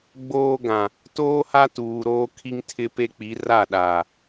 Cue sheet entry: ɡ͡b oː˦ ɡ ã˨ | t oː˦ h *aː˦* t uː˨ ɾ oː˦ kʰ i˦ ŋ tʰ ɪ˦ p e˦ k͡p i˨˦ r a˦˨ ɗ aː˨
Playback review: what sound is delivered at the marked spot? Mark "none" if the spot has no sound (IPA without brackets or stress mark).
a˦